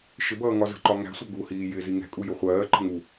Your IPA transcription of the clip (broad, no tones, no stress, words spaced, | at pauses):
ʃɪbʌː ŋɒzə̤ǃɒ ŋæ̤sʷʌ ɡuhiː jɪ ziŋɛ̤kʼu jʊχʷɜːǃə̤ ŋu